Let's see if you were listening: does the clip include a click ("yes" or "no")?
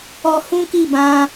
no